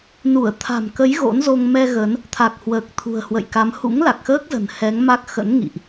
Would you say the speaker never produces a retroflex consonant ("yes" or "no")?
yes